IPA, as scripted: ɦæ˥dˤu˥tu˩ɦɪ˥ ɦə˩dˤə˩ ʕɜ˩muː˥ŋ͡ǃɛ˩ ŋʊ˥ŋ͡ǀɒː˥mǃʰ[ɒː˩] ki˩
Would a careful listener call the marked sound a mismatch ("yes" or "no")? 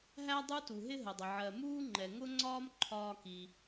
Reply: yes